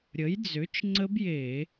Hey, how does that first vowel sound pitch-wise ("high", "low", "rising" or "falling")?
rising